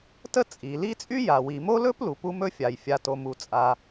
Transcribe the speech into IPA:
tə˥t͡sʼi˩li˥ t͡sʼy˥ja˩wi˩mo˥ lɵ˥p lu˩pu˧mɵ˧fʲa˩j fʲa˩to˩ mu˩t͡sʼa˩

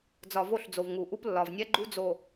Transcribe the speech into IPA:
d͡zɒ˨vo˦˨ɬd͡zo˨v ŋu˨ʔu˦plːɒ˨vnʲɛ˦ ɡ͡ǃu˦d͡zo˨

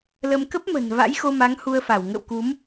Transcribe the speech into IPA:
lə˧m kə˦˥p̚mə̤˨˩n va̰˧˥jxo˧ma˨˦ŋ hu˧ə̯fa˧˩w ŋə̰˧˨wku˨˦m

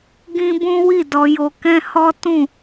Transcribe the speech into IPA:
ɡĩ˦bũ˦ wi˦˨ dɔ˧jo˧kɛ̃˦ hɔ˦ tũ˦˨

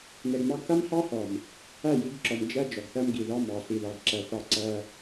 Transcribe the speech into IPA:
nɛ˨ɡmɑ˦ɡ θa˦mhɑ˦hɔ˨m | æ˦˨ji˨˦ɡǁɔ˨m d͡ʒæ˦ d͡ʒɔ˨ɡθæ˦mɡi˨ ðɑ˦mɑ˨ ɬi˨ðɑ˨ɡǁæ˨θɑ˦˨ ǀæ˦

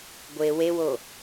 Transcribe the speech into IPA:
ɡʷe wewo

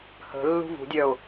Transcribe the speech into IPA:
hə̤ lːṳvṳdʲœʊ̯

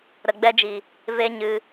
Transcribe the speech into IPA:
ɾə˨ɡ͡bɛ˧d͡ʒi˨ | ve˦ɲɨ˧

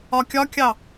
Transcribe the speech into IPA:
ɒkʲɒkʲɑ

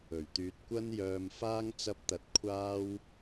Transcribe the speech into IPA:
ɵ˨˩ɥt̪yː˧t̚ kʷɐ˥njœː˧mfaː˥ŋ t͡sɐ˥p̚t̪ɐ˧t̚kʷʰaː˥w

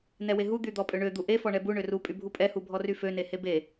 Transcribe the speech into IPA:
nɛweɦu d̪yd̪ɔpʼøɳø d̪uʔe fɔɳɛbu ɳøru pʼybʱupʼɛ hubʱɔryfø nehebe

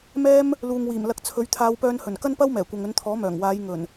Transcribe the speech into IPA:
mɛː˥m | luː˨ŋwiː˨˩m lɐ˧k̚t͡sʰɵ˨˥ɥ t̪ʰaː˨˧wpœː˧nhɵ˨˩n kɐ˥npɐ˥wmɛː˨˩ kʷɐ˨ŋɵ˨˧nt̪ʰɔː˨˥mœː˨˩ŋ waː˨˧j ŋɵ˨˩n

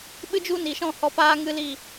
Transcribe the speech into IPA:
ɓɨ˦d͡ʒu˦ ni˨ʃɔ̃˦˨ hɔ˧paː˦ ŋɨ˦liː˦˨

